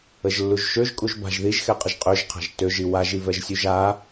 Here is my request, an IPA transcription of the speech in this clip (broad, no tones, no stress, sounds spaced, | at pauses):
ə ʒ lː u ʒ ʃ ø ʒ kʼ u ʒ b a̤ ʒ ð i ʒ x ɛ qʼ ə ʒ qʼ ø ʒ qʰ a̤ ʒ t ø ʒ i w a ʒ i v ɛ ʒ sʲ u ʒ a